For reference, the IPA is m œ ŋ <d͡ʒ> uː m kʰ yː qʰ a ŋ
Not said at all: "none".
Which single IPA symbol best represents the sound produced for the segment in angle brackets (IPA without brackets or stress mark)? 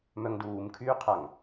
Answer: d